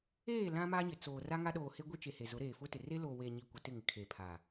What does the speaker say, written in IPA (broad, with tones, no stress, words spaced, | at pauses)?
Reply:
eː˦˨ lã˦ma˦ɲɪ˨t͡soː˨ ra˦ŋa˦ɗoː˨he˦ ɡʷi˦t͡ʃe˨he˨zʊ˨˦ ɾeː˨fʊ˦tɪ˨ re˦loː˨ we˨ɲi˨ kʷɪ˨tɪ˦˨ŋɪ˨kʰeː˨ pʰa˨